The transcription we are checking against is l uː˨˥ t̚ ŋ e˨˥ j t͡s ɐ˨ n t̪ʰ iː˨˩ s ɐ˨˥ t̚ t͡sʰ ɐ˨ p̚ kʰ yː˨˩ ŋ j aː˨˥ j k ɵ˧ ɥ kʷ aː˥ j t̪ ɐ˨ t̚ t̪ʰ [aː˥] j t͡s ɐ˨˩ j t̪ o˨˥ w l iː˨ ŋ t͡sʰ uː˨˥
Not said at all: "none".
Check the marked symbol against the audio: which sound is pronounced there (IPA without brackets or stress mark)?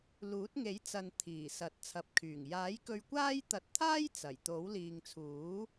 aː˥